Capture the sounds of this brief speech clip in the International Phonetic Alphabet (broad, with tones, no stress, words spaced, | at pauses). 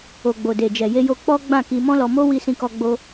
o˨ɡ͡bo˨de˨ d͡ʒɛ˨je˧jo˧ k͡pɔ˦ ɡ͡bã˦˨ki˧ mɔ̃˦lɔ˧mo˦ wi˦sĩ˦kɔ˦ ɡ͡bo˦